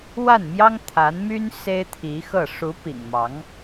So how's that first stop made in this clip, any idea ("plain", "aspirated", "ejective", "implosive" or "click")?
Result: aspirated